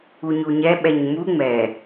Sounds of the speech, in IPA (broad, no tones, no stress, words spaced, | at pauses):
uɲuɲɛ ɓɛɲmu ŋ͡mɛ